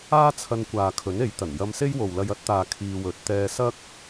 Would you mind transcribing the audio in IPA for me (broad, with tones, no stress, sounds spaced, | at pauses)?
aː˥ t͡sʰ ɐ˧ n kʷ aː˨ kʰ ɵ˨˥ n e˨˥ j t̪ ɐ˨˩ n j ɐ˧ m s e˥ j w o˨ w l ɐ˧ j ɐ˨˥ t̚ t̪ aː˨ kʰ iː˧ w ɵ˨ t̚ t̪ ɛː˧ s ɐ˥ k̚